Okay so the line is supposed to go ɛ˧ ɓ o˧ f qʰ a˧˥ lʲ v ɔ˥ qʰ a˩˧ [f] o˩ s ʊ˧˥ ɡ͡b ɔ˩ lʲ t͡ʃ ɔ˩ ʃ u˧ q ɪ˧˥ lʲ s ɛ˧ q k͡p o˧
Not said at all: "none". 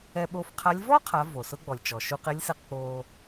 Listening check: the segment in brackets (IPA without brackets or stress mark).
v